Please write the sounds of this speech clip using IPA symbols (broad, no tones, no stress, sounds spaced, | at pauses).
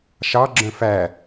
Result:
ʃ ɑ ɡ͡ǁ œ̃ f æ